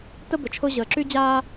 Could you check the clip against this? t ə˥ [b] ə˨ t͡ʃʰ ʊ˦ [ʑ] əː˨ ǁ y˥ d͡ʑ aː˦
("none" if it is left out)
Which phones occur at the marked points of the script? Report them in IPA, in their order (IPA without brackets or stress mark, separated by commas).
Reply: b, ʑ